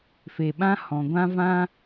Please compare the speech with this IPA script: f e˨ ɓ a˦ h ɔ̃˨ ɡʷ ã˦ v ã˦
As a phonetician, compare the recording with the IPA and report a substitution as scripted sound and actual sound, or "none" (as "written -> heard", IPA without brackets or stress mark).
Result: a˦ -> ã˦